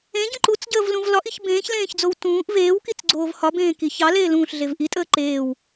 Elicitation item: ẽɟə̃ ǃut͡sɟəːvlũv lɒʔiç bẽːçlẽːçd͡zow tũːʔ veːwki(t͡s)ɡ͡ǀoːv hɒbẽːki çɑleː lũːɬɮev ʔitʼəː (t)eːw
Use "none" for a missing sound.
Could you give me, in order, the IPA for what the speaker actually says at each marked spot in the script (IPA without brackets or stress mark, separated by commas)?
t͡s, ǃ